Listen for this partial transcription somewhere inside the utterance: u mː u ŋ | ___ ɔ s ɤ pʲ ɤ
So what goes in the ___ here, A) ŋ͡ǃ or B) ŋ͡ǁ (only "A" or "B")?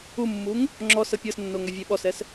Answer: B